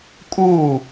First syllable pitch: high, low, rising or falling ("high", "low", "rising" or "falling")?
falling